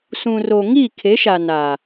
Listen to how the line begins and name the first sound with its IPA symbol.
s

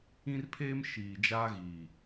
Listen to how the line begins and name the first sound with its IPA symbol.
ĩ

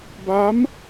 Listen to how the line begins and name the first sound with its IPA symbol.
b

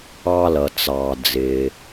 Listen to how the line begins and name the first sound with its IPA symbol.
ɑ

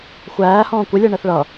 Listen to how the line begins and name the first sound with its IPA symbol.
xʷ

